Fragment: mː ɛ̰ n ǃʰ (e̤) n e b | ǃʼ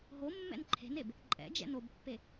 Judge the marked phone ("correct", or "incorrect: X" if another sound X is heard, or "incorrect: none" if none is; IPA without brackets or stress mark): correct